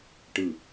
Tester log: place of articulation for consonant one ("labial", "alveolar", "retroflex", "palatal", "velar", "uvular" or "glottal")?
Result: retroflex